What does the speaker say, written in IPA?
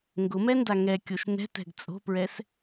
ŋ ɡ ʊ m ɛ n d a ŋ ɛ kʲ o ʃ n ɛ̤ t ɛ̤ ɡ t͡sʼ o̤ p ɹ ɛ s

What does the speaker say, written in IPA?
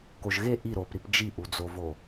k o ʒ ɣ e ʔ i ɾ o p ɾ i p d͡ʒ i ʔ u d͡z o v o

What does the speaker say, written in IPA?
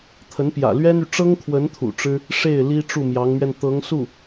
t̪ʰ ə˧˥ n p j ä̰˨˩ l ɥ ɛ˥ n y˨ ʈ͡ʂ ɤ˥ ŋ kʰ w ə˧˥ n t̪ʰ ṵ˨˩ ʈ͡ʂ ɻ̩˥ | ʂ e˥˩ ɪ̯ l i˥ ʈ͡ʂ u˥˩ m j ɑ˧˥ ŋ m ɥ ɛ˧ n t̪ ɤ˧˥ ŋ s u˥˩

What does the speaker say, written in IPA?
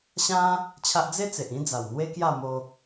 ɕ ã˦ | t͡ɕʰ a˦ ʔ d͡z e˦ t͡s e˨ ʔ ĩ˦ d͡z a˨˩ w n̪ w e˦ k j a˥˧ m o˧

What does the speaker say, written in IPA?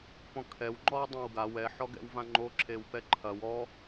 p ɔ̃ kʰ ɛ w ŋ͡ǃ ɔ w dˤ ã w ɡ a w ɛ ħ ɔ ɡ ɛ̰ w v ã ŋ͡ǃ o ǁʰ e w p ɛ ǃʰ ɐ w ɔ

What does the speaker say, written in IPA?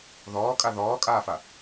ð ɔː kʼ a ð ɔː kʼ aː f a

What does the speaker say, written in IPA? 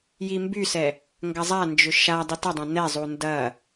j i m b y s ɛ | ŋ ɡ ɐ zˤ a n d͡ʒ ʏ ʃ a dˤ i t ɐ dˤ ã n ɛ zˤ u n d ɐ

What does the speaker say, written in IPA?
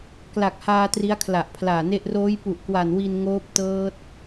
k l a˨˩ k̚ h aː˧ t r i˦˥ a̯ kʰ l a˨˩ ʔ pʰ l aː˨˩ n e˥˩ ʔ r oː˦˥ j p u˨˩ ʔ k w a˨˩ n w i˧ n ŋ oː˦˥ p̚ t ɤː˦˥ t̚

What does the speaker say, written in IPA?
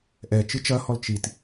ʔ ɛ t͡ʃ ɨ t͡ʃ ɐ h ɔ l t͡ʃ i t

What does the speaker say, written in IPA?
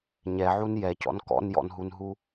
ɲ ɛ ʕ u n j ɛ c ɔ̰ n k ɔ̰ n j ɔ̰ n ɦ u n ɦ u

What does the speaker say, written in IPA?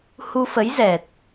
h u˧ f ə˨˦ j z ɛ˨˩ t̚

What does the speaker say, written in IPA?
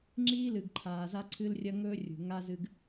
ŋ͡ǁ iː˦ l ɨ˨ ɡ ǃʰ aː˨ z a˦ ǀʰ ɨ˦ l rʲ ɐ˦ ŋ ɵː˦ rʲ ṳ˨ ŋ a˦ z ɨ˦ ɡ

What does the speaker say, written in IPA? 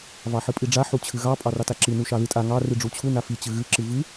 v ɑ ħ ɨ pʼ i ɖ͡ʐ a ħ u t͡ɕʰ ɨ ɣ ɑ pʼ ɑ r ɑ t a ǁ ɨ n u ʃ ɑ ð ɨ tʼ a ŋ ɑ r ɨ ɖ͡ʐ u t͡ɕʰ u n a f i t͡ɕ ɨ ɣ ɨ ǁ ɨ v ɨ

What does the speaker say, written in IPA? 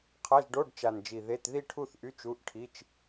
qʰ a˧˥˧ ʒ ɖ o˧˥˧ ɖ t͡ʃ a˨˩ n d͡ʒ i˨˩ ð e˧˥˧ t ð i˥˧ ʈʰ u˥˧ θ ʔ y˧˥˧ t͡ʃ u˧˥˧ ʔ ʈʰ i˧˥˧ t͡ʃ

